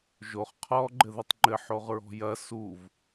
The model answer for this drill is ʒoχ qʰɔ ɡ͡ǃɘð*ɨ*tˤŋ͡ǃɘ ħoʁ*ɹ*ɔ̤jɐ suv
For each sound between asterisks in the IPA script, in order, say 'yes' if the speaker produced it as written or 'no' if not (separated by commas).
yes, yes